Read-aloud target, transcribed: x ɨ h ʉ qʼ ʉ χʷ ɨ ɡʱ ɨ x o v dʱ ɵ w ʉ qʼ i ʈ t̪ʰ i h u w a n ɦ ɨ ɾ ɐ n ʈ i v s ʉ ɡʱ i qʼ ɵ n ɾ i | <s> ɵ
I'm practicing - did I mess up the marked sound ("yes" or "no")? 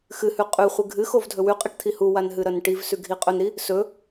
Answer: no